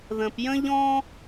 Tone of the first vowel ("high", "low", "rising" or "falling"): low